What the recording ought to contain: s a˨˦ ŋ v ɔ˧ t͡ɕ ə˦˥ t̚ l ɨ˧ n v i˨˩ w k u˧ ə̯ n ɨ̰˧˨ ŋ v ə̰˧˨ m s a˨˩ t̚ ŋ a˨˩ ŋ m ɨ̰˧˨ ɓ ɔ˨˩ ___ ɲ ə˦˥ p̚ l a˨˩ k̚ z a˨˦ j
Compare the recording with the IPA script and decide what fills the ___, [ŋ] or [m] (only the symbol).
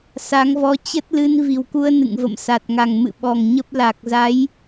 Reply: ŋ